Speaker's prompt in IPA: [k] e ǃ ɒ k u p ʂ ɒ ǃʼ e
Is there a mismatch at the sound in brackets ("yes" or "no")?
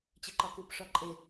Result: yes